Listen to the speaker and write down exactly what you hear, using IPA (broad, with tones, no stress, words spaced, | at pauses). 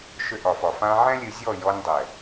ʃʏ˧ʔɒ˨fɒ˨ fã˧ʕɛ̃˦lʲɨ˧zʲɔ˦˨ jɔ˧nʲdˤɛ˨